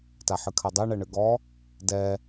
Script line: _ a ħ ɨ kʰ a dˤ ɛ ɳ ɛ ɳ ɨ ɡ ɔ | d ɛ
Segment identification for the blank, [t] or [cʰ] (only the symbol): t